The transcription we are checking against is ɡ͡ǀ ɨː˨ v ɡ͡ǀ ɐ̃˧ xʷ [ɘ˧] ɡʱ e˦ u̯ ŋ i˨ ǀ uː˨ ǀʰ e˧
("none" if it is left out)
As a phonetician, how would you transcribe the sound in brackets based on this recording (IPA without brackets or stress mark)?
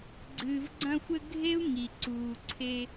ɘ˧